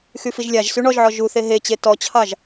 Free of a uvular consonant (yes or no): yes